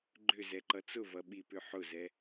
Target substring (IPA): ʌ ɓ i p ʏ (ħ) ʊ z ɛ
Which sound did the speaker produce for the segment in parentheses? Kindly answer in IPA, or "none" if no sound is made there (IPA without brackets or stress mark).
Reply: ħ